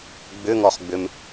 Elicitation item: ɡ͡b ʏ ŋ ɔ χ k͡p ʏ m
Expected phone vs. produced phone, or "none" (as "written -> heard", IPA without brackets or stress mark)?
k͡p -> ɡ͡b